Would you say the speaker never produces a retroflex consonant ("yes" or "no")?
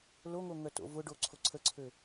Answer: no